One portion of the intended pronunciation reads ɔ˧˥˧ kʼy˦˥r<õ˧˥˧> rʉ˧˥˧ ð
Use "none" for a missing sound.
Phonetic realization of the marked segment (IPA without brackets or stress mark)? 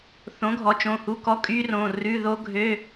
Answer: õ˩˧˩